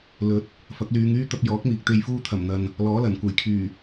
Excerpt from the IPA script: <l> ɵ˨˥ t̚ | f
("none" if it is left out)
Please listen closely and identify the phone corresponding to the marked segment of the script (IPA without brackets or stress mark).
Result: l